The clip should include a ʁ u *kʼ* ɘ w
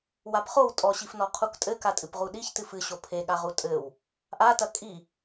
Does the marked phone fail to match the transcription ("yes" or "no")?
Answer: yes